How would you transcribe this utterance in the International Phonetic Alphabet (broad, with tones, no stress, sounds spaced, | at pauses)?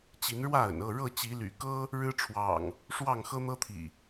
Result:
t͡ɕ i˨˦ n ɻ w ä˥˨ ə̰˨˩ n ɤ˥˨ ɻ ɤ˥˨ t͡ɕ i˨˦ l y̰˨˩ k ɤ˦ | ɻ ɻ̩˦ ʈ͡ʂʰ w ɑ̰˨˩ ŋ | ʂ w ɑ˥˨ ŋ x ɤ˦ n̪ ɤ˦ t̪ʰ ḭ˨˩